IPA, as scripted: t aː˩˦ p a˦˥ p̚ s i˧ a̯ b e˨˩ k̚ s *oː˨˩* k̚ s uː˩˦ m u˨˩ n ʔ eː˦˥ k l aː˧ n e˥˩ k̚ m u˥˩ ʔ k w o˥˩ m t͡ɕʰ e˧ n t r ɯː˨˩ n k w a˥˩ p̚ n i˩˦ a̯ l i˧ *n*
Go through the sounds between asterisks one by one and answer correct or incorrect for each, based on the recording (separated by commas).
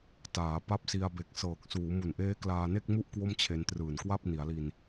incorrect, correct